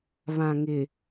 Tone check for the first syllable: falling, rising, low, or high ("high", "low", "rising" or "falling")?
low